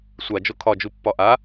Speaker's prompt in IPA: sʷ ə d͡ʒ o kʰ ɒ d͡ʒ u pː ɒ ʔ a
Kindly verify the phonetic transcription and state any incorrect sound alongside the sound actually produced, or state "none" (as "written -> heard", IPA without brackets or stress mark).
ə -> a